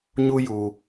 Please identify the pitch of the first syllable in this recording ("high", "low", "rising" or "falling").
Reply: high